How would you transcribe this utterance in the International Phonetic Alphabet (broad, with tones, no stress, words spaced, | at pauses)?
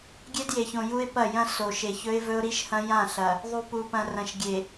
ɡʲe˦dje˨çõ˨ ju˦ɪ̯pɐ˦˨jɐ̃˦ so˨ʃe˨çɵ˦ɪ̯vɵ˦ʊ̯ ɾi˦ʃhɐ̃˦jã˦˨ ɬɐ˨ | ðˤu˨ pu˨pɐ̃˨ rɐ̃˨ʃɡʲe˨